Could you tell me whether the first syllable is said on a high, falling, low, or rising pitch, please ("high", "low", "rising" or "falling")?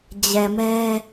low